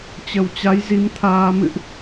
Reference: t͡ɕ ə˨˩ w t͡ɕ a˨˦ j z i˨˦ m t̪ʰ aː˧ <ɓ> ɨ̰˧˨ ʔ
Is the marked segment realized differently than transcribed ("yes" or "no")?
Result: yes